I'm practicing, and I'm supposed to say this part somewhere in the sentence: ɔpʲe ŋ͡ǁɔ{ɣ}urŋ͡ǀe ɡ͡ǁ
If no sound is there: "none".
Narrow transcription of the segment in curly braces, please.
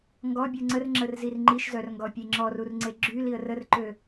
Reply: r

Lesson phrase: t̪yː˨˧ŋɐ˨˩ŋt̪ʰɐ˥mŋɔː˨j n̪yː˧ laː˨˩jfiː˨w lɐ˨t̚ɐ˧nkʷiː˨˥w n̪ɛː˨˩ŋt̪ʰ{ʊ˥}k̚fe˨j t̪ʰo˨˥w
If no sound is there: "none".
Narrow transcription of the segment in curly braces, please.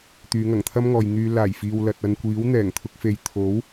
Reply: ʊ˧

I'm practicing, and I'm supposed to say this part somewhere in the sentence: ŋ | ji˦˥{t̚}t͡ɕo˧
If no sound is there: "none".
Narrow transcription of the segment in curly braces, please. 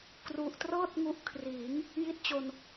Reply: t̚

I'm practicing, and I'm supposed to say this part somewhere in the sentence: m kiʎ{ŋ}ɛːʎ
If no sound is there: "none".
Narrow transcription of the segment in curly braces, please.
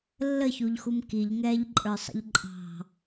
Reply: ŋ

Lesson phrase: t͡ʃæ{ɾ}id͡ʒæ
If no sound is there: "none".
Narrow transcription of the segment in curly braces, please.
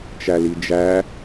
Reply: l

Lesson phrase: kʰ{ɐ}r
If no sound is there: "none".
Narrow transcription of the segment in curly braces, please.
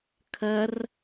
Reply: ɐ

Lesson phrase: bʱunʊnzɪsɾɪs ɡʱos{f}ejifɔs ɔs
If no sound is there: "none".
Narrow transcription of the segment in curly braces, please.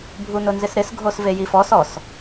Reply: v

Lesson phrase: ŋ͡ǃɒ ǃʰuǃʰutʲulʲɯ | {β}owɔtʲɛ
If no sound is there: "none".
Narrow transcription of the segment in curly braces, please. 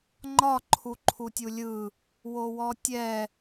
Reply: w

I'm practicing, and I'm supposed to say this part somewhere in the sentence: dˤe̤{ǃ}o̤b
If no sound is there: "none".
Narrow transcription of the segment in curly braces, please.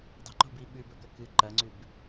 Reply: ǃ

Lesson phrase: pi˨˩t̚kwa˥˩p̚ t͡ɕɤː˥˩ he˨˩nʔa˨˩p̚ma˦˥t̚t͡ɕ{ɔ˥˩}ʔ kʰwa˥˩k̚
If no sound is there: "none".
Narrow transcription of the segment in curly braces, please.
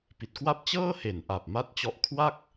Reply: ɔ˦˥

